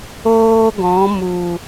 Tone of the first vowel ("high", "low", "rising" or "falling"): high